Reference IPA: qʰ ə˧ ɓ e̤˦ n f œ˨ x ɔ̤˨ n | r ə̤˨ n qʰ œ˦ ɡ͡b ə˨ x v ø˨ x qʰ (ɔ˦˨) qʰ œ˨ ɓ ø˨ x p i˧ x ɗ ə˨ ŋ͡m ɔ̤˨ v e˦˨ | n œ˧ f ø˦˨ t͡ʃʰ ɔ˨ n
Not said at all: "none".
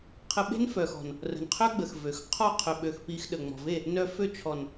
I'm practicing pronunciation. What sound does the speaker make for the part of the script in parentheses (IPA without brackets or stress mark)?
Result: ɔ˦˨